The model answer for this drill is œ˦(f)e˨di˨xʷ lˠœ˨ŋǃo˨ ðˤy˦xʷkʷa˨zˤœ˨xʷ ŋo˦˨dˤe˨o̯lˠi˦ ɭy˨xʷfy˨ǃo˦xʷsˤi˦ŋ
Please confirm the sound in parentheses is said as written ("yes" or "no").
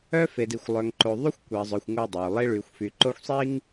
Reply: yes